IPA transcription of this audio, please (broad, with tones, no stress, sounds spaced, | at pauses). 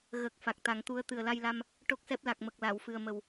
ɣ ə˨˩ k̚ f a˨˩ k̚ t̪ a˨˩˦ ŋ t̪ u˧˥ ə̯ t̪ ɨ˨˩ ə̯ l a˧ j l a˧ m | ʈ o˦˥ k̚ s ɛ˦˥ p̚ l a˨˩ k̚ m ə˨˩ k̚ l a˨˩˨ w f ɨ˨˩ ə̯ m ə˨˩ w